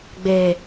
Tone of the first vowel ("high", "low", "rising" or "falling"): low